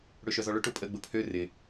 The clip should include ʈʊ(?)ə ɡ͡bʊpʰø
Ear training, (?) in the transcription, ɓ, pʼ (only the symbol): pʼ